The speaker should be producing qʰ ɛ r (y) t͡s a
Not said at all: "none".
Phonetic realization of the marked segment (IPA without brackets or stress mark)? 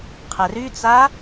y